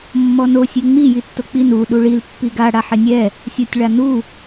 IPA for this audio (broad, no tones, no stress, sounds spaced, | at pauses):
mː ɔ n o sʲ e ŋ͡m i j i tː o k͡p i n u ɗ u ɭ i l pː i ɡ a ɽ a ħ ɪ nʲ ɛ | sʲ o tʲ ɭ a n u